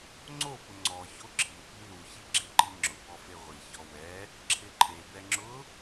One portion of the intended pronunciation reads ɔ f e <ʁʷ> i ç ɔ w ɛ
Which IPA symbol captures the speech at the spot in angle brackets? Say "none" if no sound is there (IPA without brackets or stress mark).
ʁʷ